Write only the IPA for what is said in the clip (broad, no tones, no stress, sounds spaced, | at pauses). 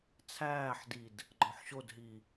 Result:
t͡sʰ æː ħ d i d | ɡ͡ǃ ɒ ħ ɕ o d ɦ i